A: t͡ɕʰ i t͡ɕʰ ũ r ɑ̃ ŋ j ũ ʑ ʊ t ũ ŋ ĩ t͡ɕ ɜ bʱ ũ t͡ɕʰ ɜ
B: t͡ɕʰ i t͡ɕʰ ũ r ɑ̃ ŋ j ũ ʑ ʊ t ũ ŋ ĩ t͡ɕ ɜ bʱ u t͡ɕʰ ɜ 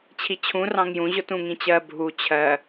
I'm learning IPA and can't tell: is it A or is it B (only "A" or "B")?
B